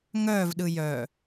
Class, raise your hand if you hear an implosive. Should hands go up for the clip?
yes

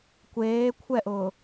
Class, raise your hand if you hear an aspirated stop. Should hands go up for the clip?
yes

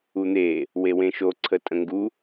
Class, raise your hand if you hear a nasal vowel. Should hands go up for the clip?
yes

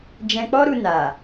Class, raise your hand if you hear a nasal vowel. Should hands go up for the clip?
yes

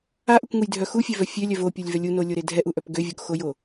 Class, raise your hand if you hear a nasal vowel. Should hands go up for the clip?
no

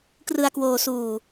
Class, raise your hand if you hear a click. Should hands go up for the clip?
no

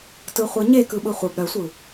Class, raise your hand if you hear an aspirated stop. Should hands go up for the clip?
no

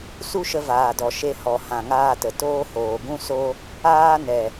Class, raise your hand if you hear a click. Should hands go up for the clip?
no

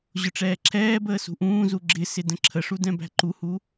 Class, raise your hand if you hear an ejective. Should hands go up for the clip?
no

